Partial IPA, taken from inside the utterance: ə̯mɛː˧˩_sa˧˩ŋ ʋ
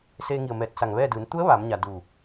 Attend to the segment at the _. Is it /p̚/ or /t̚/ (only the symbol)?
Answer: t̚